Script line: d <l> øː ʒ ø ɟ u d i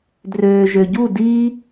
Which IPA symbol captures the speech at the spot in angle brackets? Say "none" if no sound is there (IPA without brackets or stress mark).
r